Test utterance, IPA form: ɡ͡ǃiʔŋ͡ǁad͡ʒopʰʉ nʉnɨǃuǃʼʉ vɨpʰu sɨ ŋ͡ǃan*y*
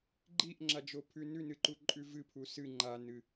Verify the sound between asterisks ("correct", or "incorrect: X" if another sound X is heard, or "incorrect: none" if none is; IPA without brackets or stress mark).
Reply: incorrect: ɨ